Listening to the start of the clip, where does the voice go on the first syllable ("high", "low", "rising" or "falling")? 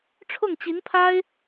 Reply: falling